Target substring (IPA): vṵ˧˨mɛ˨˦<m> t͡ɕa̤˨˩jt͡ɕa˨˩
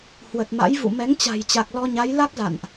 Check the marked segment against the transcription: incorrect: ŋ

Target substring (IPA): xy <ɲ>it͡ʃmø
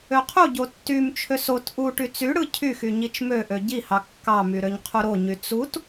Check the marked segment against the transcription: correct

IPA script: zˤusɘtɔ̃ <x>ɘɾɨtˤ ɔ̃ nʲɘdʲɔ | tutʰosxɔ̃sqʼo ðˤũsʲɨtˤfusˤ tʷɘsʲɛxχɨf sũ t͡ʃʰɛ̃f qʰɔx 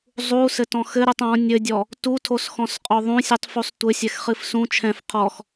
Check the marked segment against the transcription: correct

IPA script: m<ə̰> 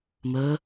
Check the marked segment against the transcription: incorrect: ə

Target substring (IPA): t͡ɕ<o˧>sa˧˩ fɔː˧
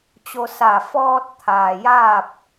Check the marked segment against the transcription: correct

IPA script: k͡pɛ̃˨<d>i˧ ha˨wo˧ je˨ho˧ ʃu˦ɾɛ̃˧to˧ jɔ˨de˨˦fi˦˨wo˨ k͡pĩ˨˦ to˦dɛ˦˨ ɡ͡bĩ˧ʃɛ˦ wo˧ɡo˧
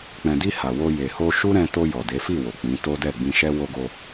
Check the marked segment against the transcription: correct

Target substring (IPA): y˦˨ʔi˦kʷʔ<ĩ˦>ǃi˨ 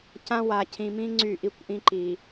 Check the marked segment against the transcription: correct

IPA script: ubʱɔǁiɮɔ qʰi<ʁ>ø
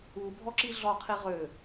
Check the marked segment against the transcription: correct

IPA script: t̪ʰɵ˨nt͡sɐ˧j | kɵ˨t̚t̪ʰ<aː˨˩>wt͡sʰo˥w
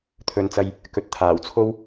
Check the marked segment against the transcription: correct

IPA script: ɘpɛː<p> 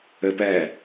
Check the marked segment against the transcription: incorrect: none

